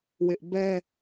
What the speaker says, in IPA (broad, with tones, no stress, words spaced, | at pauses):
wɪ˦ʔ bɛ˦